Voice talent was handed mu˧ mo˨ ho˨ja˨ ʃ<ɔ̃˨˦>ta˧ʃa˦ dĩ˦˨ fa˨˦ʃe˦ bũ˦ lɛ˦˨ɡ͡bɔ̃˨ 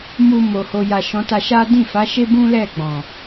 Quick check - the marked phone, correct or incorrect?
correct